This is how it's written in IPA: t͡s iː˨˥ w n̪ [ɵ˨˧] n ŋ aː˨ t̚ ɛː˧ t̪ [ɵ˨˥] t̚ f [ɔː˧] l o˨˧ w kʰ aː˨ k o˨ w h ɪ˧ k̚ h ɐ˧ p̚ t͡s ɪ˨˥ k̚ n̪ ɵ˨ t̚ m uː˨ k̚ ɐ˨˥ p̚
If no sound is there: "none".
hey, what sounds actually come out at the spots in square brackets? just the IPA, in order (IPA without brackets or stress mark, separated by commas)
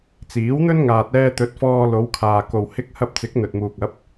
ɵ˥, ɵ˨˥, ɔː˧